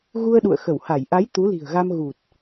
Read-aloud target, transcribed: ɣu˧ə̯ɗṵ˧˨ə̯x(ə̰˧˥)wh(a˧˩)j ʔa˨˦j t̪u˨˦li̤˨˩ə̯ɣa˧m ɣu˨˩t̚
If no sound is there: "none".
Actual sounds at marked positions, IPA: ə˧˩, a˧˩

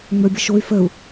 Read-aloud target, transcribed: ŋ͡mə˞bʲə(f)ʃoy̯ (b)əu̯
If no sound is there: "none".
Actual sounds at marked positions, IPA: none, f

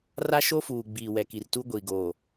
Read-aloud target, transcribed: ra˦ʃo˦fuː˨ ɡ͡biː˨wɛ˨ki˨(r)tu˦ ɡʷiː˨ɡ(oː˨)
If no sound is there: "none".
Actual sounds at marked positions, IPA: r, oː˨

